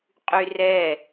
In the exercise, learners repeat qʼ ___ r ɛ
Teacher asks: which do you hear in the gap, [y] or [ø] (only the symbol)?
y